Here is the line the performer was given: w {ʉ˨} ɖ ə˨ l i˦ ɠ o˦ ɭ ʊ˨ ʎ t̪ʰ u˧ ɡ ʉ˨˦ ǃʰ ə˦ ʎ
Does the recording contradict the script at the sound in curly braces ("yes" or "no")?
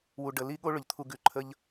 yes